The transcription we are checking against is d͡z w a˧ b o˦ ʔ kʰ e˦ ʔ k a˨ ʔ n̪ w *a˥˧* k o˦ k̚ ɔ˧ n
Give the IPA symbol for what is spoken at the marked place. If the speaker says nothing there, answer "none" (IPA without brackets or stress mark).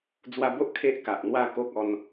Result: a˥˧